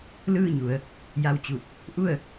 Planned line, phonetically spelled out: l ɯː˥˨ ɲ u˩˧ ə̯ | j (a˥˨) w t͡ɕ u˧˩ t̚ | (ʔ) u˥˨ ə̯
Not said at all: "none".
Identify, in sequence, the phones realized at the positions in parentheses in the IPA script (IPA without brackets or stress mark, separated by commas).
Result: a˧, ʔ